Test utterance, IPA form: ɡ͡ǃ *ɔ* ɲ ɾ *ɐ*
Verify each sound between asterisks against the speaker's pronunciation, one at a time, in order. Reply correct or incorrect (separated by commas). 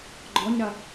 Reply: correct, correct